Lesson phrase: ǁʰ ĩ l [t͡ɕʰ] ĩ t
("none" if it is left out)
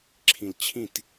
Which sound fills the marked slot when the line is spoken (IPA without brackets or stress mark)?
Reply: t͡ɕʰ